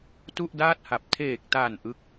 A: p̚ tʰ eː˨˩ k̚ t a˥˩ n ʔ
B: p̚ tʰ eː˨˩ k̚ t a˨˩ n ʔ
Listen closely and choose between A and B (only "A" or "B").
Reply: B